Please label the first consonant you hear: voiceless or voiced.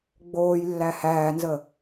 voiced